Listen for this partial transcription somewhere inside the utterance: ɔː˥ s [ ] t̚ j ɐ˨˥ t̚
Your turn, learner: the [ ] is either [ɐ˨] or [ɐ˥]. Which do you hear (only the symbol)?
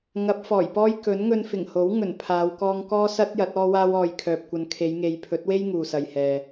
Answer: ɐ˥